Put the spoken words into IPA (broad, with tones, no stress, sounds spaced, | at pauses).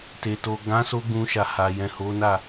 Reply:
t e˨ t o˨ ɡ ã˨˦ s o˧ ɡ ũ˧ ʃ a˨ h a˨ j ɛ̃˨ h o˨˦ n a˦˨